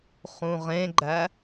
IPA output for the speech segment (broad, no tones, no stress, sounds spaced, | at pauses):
χ ũ ʁ ẽ ɡ͡ǃ æ